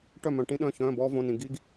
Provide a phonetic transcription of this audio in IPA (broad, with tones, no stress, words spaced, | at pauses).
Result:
ʈœ˥˨mœ̃˧ ʈĩ˥ɗœ̃˧˥˧ çœ̃ː˧˥˧bɔː˥võ˧˥˧nĩ˧ ɡi˥ɡ